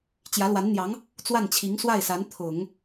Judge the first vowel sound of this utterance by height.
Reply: low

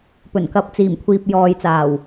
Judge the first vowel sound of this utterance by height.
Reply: mid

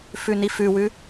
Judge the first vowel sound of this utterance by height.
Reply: high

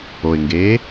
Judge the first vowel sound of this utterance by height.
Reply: mid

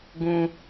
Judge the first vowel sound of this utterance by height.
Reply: high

